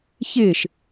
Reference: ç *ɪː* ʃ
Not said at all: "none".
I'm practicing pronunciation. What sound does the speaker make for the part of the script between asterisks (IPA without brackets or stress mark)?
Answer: ɪː